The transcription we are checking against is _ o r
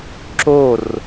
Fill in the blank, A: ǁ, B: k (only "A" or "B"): A